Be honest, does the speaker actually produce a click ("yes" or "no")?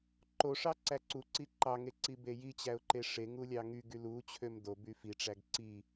yes